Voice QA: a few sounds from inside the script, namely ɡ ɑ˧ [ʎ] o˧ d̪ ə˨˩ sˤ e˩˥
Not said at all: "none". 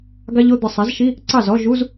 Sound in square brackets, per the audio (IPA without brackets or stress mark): ʎ